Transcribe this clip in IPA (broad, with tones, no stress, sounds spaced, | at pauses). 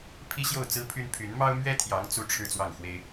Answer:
pʰ i˥ ɕ j o˥˩ ʊ̯ t͡s ɹ̩˥ pʰ y˥ n pʰ y˧˥ n m ɑ˥ ʊ̯ m ɥ ɛ˥ t̪ʰ j ɑ˧˥ ŋ t͡s u˥˧ ʈ͡ʂʰ ɻ̩˥˧ t͡s w ɑ˥˩ ŋ x w e˥ ɪ̯